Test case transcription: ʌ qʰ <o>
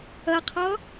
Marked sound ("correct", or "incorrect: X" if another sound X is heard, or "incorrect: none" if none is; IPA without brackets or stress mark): incorrect: ɔ